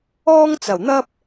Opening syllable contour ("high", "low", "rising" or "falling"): high